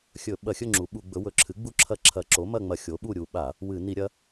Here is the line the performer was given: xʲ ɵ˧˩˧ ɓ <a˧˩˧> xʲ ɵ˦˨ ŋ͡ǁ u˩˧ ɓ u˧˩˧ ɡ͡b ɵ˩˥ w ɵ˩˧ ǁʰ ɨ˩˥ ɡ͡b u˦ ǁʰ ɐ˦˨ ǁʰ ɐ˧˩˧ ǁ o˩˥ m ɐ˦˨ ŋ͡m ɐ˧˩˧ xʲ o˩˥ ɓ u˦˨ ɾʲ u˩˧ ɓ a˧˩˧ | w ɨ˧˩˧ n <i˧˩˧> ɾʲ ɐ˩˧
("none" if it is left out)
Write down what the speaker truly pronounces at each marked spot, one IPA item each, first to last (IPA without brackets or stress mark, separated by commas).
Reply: ɐ˧˩˧, i˧˩˧